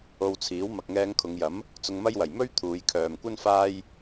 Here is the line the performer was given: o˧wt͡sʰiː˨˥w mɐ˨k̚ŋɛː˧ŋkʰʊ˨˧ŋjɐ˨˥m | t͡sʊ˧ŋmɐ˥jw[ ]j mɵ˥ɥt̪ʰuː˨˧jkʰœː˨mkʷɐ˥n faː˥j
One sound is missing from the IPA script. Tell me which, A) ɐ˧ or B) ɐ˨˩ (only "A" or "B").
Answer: B